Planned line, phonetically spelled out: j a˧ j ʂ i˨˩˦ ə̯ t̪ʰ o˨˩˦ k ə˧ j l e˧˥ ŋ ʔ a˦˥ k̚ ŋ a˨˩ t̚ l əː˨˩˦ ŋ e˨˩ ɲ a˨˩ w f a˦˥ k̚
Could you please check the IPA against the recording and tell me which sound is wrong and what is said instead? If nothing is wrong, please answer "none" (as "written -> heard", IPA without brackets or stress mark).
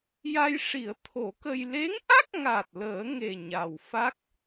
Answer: none